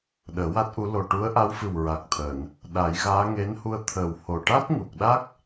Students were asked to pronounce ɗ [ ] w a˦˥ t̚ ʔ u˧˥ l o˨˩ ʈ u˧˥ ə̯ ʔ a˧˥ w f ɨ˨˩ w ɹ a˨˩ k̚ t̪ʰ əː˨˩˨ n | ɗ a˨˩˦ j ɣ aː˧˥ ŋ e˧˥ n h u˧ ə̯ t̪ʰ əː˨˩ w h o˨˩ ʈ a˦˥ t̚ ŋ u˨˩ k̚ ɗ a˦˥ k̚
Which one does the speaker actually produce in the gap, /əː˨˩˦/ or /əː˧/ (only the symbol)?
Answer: əː˨˩˦